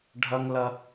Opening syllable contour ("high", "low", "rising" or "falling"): high